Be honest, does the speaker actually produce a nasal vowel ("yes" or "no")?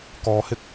no